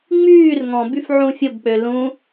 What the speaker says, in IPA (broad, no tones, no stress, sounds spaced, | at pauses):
ŋ͡m yː r ŋ ɔ̃ b y f ʕ ũ fʲ ʊ b k͡p ø l ũ